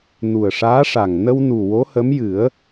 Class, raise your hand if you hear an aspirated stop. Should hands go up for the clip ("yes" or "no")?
no